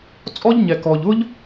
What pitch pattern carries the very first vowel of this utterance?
high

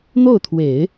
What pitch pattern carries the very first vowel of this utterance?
falling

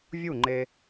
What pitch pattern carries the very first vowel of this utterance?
falling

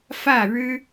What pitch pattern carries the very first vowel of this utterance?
falling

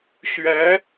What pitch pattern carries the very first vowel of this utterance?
rising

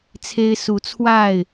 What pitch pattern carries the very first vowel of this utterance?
high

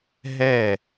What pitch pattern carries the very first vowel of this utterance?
falling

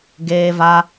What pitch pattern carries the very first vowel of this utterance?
high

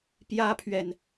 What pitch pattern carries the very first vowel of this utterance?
high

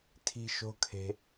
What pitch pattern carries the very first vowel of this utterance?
high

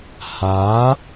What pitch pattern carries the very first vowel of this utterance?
rising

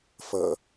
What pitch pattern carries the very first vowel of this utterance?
low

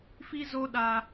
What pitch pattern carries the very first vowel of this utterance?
high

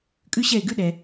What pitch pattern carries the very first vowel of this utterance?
high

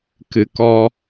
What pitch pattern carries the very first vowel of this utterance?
low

